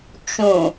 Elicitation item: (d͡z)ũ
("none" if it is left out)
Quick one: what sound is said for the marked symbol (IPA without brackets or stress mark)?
t͡ʃ